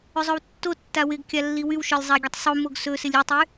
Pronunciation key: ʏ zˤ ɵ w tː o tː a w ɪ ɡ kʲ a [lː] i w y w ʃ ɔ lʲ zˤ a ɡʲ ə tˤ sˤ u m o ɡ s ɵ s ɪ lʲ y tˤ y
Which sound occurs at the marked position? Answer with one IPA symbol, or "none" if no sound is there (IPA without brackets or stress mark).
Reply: lː